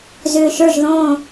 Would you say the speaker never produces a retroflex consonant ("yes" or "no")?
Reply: yes